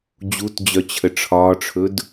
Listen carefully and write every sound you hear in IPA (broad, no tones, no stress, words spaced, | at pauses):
d͡ʑutd͡ʑœt͡ɕʰə ʈ͡ʂʰɒːʈ͡ʂʰɵd